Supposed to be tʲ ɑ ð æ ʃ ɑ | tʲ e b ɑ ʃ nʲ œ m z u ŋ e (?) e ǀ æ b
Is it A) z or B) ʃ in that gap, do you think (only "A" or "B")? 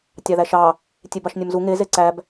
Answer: A